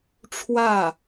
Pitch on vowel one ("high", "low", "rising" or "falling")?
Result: falling